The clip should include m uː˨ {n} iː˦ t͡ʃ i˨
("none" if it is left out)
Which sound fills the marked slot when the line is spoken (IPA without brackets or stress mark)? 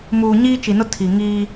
ɲ